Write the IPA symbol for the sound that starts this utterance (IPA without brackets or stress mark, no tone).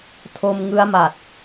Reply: tʰ